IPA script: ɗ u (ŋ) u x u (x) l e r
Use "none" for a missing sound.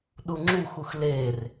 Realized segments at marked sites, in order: ŋ͡ǁ, x

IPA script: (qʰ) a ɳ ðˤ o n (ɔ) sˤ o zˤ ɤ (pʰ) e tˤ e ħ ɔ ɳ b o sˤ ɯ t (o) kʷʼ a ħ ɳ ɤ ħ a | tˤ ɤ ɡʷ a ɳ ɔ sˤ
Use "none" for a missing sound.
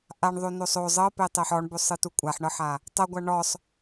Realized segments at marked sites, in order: ʔ, o, p, u

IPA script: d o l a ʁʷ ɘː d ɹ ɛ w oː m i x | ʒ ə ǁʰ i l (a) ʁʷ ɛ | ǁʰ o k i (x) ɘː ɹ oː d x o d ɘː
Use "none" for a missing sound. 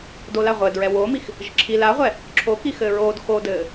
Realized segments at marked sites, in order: a, x

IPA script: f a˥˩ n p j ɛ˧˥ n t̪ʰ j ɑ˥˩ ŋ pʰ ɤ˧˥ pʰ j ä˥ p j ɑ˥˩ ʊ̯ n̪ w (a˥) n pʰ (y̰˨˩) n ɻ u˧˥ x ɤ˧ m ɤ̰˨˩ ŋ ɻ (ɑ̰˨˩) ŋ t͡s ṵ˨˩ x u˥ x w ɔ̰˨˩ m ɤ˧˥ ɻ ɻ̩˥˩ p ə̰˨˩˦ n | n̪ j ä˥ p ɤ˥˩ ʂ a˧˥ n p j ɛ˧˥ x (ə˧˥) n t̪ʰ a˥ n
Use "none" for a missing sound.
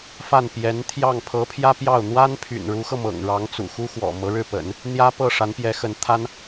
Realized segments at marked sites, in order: a˥, y̰˨˩, ɑ˧˥, ə˧˥

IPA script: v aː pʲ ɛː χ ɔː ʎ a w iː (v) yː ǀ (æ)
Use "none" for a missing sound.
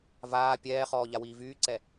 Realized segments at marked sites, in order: v, ɛ

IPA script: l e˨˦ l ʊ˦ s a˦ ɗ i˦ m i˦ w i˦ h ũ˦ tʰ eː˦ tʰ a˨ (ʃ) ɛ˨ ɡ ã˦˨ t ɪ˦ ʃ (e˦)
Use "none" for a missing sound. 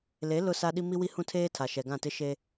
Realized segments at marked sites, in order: ʃ, e˦

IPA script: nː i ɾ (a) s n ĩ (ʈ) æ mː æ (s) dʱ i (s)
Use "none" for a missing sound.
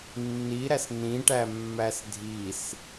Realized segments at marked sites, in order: æ, ʈ, s, s

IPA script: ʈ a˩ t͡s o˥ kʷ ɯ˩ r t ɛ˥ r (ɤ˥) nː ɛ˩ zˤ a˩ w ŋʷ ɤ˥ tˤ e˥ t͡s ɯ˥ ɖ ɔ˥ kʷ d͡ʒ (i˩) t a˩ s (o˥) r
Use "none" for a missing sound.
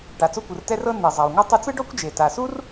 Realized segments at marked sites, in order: ɤ˥, e˩, u˥

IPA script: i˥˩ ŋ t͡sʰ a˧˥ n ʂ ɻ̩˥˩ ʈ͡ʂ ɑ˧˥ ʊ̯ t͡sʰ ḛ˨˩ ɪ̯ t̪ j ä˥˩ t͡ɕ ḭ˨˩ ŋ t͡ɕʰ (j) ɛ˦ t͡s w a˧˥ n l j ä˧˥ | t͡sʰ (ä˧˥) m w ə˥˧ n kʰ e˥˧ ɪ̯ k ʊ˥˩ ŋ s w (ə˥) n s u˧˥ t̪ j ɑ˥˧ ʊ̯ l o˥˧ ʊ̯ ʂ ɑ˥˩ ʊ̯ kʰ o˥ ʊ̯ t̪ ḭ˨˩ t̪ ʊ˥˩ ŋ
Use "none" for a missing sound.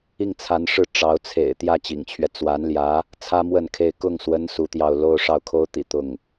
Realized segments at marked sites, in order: ɥ, ä˥, ə˧˥

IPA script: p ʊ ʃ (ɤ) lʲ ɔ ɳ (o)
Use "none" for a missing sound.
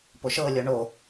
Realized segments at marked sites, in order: ɤ, o

